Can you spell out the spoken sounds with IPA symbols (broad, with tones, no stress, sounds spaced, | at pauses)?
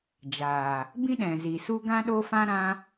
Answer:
d͡ʒ aː˨ | b ĩ˦ ɗ ɛ̃˨ z i˨ s u˦ ɡ ã˦ ɗ o˦ f ã˦ ɾ ã˦